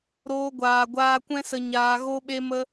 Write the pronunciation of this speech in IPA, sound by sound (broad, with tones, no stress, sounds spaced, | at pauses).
ɾ oː˧ ɡʷ aː˨ ɡʷ aː˧ kʷ ɛ̃˦ s ə˧ ɲ aː˧ ɣ o˦ ɓ e˦ m ə˦